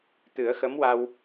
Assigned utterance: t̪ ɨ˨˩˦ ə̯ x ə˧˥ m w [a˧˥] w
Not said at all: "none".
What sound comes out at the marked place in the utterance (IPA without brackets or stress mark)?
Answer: a˧